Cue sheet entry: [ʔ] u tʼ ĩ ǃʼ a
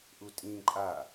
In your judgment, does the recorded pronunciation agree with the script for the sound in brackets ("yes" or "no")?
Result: yes